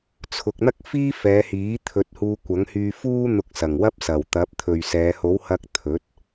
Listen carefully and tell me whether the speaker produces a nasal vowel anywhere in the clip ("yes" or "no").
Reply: no